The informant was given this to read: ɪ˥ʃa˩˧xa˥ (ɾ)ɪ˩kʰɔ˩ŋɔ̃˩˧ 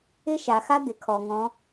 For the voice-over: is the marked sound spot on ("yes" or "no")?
no